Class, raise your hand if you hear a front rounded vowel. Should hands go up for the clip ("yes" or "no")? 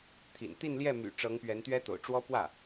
yes